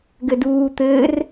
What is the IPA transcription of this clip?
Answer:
ɡɘduːt̪ɘːr

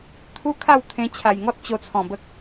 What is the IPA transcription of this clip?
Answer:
t̪ʰu˦kʰa˥˧w t̪ʰẽ˧ t͡ɕʰa˨˩jŋɔ˦t̚t͡ɕo˧t͡sʰɔ̃˨˩ bə˨k̚

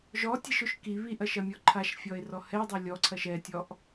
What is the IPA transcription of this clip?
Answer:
ʒɔtʲɛʃoʃ ki βiʔɐʃɐmʲɔ ǃʰaʃfʲɔe̯rɔ hɛdˤɛ lʲɔǀʰɐʃ ɛtʲɔʔ

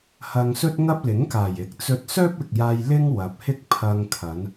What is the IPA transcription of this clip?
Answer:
hɐ˧ŋsɵ˥t̚ŋɐ˥p̚ lɪ˨˥ŋkaː˨˩jɪ˨˥k̚t͡sɵ˧t̚ sœː˥p̚ɪ˨k̚jaː˧j lɪ˥ŋ wɐ˨p̚hɪ˥k̚pʰɐ˧ŋ kʰɐ˨˧n

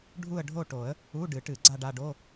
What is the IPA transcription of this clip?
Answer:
ɖʱu˥˧ə̯ɖʱo˥˧ʈo˨˩˦ə̯ | u˧˥˧ɖɨ˨˩˦ʈɨ˨˩˦ ɡ͡ǀa˥˧ɖa˥˧ɖo˧˥˧

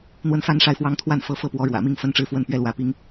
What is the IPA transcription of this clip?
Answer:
n̪wə˥˩nfa˥nʂa˥˩ɪ̯fwɑ˥ŋ t̪ʰwa˥˩nfɤ˧˥fɤ˥˩pwɔ˧˥ ɻwä̰˨˩mi˥˩ŋ fə˥nʈ͡ʂɻ̩˥˧fwə˥˩n pɥɛ˥lwä˧˥pi˥ŋ

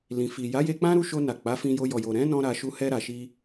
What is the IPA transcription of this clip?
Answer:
lĩ˨ fi˨ ja˨˦je˧k͡pã˦ ɾu˧ʃo˧na˨ k͡pa˨˦fĩ˧jo˧ jɔ˨jo˨ ɾɛ̃˨˦nɔ̃˧ ɾa˧ ʃu˧hɛ˧ɾa˨ʃi˧

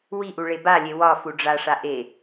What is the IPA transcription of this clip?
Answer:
wiʔu ɭebalʲe wɒ fuɖ͡ʐaʂa ʔe

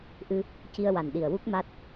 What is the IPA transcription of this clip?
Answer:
ʔɨ˧ | ci˧ə̯wa˨˩nɗi˨˩ə̯ wu˦˥k̚ma˦˥t̚

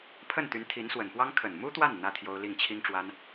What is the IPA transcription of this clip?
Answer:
pʰə˥˩nt̪y˧˥n t̪ʰi˧˥nswə˨˩npwɑ˥ŋ kʰə˨˩nmu˥t̪wa˥˩n n̪ä˥t̪ʰjo˥ʊ̯ li˥˩ŋt͡ɕʰi˥ŋʈ͡ʂwa˥n

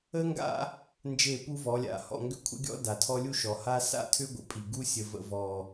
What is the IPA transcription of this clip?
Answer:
ə˦ŋɡa̰˦ | nd͡ʒe˦˨pu˦vɔ˨˦lʲa̰˨ hɔ̰˦˨ŋɡʏ˦kʷʰə̰˦ɡʲɔ̰˦ da˨tʰɔ˦lʲu˦ ʃɔ˨ha˦ sa̰˦tʰʏ˦ɡʷə̰˨pʼi˨ ɡu˦sʲə˨ və̰˨ vɔ˨

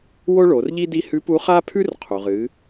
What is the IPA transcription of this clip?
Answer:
wo˥ɭo˩˧rʎi˥ di˥ hʉ˧˥pu˧˥χa˥pʰʉ˥r qʰu˩ʁɨ˩˧

